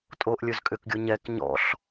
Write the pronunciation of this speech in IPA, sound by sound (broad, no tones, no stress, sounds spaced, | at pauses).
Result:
tʼ o ʔ lʲ ɵ z kʼ ʏ k ɡʲ o ɲ ɛ k ɲ ɔ̰ ɬ